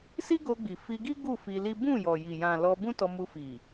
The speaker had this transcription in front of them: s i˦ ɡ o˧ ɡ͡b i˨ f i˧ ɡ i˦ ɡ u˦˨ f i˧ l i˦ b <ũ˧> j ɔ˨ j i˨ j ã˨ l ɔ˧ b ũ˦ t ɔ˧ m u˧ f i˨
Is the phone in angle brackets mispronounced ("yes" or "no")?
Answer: yes